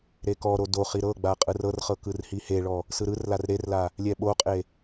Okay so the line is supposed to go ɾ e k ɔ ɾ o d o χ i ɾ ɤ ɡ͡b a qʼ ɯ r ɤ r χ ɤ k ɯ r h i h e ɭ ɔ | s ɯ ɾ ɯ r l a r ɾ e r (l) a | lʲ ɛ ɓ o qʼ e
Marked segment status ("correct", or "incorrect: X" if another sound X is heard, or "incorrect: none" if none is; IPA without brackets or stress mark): correct